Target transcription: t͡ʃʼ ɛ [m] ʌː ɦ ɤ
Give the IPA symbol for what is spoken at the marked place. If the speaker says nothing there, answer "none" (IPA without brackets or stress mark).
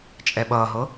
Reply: ɓ